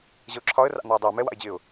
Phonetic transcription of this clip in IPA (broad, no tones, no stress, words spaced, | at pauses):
ʑəʊ̯ǁʰɒə̯ rɑ̰n̪ʌɪ̯dˤɪː mɛwɑ̰ɪ̯d͡ʑɪːʊ̯